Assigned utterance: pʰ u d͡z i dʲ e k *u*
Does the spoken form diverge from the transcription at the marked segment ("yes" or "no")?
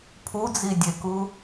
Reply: no